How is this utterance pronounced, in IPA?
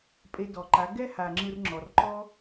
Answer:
pʼ e˧ d ɔ˨ ǃ a˨˦ ɡ ɛ˦ h a˨ ŋ͡ǁ ɯ˧ r ŋ͡ǁ ɔ˨ r ǃ ɔ˦

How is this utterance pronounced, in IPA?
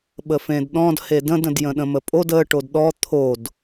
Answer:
ɓ ə f ẽ d ɗ ɔ̃ d h e d ə̃ d ə̃ d j ə̃ ɗ ə̃ m ə pʼ o d ə ʈ o d ɗ ɔ t̪ʰ o d

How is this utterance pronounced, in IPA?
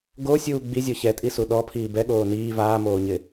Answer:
ɡ o sʲ uː ɡ͡b i zʲ ɔ ç ɛ tʼ i s u ɗ ɔ pʰ iː b ɛ ɠ oː n iː v aː m oː ɲ ɪ

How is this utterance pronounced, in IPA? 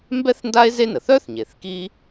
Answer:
m b ɛ˥ θ n d a˥ e̯ z e˥ n ə˩ θ œ˥ θ ɲ e˩ θ k i˦

